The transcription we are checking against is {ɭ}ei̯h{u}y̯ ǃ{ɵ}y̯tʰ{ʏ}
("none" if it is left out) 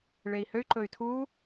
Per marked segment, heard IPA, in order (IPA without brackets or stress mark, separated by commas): ɭ, ø, ɵ, u